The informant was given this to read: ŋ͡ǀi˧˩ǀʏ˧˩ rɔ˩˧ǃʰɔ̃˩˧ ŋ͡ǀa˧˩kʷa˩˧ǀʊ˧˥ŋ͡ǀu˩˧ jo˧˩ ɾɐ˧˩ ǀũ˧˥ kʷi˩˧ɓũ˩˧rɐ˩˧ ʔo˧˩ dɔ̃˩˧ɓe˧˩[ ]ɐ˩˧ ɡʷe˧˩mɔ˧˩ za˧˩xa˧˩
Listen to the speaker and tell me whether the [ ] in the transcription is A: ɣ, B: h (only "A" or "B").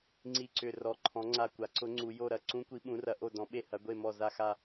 B